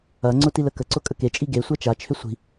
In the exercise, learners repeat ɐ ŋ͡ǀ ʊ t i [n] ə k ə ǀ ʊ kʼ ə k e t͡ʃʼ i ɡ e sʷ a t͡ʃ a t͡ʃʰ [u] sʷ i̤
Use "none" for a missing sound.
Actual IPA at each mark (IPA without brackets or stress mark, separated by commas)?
l, ʏ